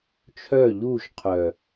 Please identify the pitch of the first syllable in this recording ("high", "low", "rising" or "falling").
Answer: falling